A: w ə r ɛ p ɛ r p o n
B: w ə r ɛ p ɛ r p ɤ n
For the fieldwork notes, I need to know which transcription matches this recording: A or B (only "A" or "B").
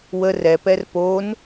A